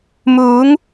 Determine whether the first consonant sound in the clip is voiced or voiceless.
voiced